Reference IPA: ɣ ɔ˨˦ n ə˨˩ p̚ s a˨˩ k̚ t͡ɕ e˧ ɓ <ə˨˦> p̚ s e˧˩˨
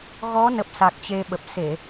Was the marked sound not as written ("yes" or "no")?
yes